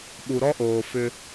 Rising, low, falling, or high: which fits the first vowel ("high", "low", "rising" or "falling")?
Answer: low